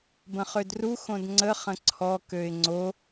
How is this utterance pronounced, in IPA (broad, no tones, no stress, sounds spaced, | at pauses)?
b ə̃ χ ø d r u x õ d ŋ͡ǀ ə χ ə̃ ǀʰ ɔ k ø ɪ̯ ŋ͡ǀ o